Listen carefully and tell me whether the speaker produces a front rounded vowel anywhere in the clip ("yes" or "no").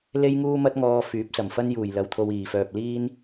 yes